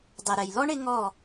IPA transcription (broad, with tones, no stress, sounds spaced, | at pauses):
dˤ ɛ˨ ɾ ɛ˨ j l ɔ˦ ɳ ɪ˦ ŋ ɔ˦˨